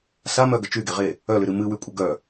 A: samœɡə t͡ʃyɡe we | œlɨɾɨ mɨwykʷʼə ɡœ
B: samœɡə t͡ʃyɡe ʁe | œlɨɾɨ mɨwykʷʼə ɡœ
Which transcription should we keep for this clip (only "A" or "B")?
B